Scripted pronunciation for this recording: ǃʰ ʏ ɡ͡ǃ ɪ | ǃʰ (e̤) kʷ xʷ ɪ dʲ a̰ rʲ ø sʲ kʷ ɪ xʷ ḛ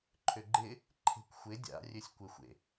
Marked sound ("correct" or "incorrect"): correct